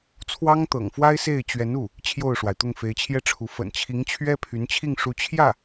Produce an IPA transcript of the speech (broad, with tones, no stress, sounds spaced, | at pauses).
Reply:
t͡sʰ w ɑ˥ ŋ t̪ ɤ̰˨˩ ŋ f w a˥ ɪ̯ s e˥˩ ɪ̯ t͡ɕ ɥ ɛ˧˥ n u˥˩ | t͡ɕʰ j o˥˩ ʊ̯ ʂ w a˩ ɪ̯ t̪ ʊ˥˩ ŋ f e˧˥ ɪ̯ t͡ɕʰ j ɛ˥˩ ʈ͡ʂʰ u˧˥ f ə̰˨˩ n t͡ɕʰ i˧˥ ŋ t͡ɕʰ ɥ ɛ˥ pʰ y˧˥ n t͡ɕʰ i˥˩ ŋ ʂ u˧˥ t͡ɕʰ j ä˥˩